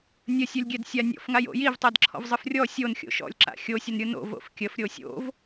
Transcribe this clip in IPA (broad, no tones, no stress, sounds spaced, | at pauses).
nʲ ə sʲ o lʲ ɡʲ ɛ d sʲ a nʲ ɔ̰ f ŋ a j o̰ j i v tˤ ɛ d ǁʰ ɔ̰ v zˤ ɯ f rʲ ɔ sʲ o n xʲ o̰ ʃ ɔ̰ lʲ ǁ a̰ xʲ o sʲ ə n ɾʲ ɯ n o̰ v o̰ f kʲ ə f ɾʲ o sʲ o̰ v